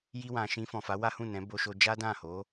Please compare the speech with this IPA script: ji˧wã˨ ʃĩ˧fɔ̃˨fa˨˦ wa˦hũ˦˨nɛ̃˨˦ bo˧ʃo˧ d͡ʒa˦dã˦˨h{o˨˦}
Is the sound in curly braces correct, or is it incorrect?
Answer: correct